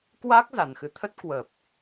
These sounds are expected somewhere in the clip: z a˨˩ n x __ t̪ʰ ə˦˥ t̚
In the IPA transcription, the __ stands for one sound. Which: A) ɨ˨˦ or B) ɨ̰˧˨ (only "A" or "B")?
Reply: A